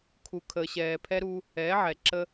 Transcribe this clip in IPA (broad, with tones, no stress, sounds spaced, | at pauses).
kʰ u˨ kʰ əː˨ ɕ ɛː˨ pʰ ɛ˦ ɾ u˦ | ɛː˨˦ ʕ ɛ˨ ǁ ə˦